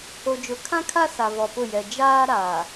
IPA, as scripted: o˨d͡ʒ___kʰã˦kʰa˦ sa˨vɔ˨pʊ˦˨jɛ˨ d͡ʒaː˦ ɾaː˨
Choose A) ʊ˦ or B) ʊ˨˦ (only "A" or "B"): B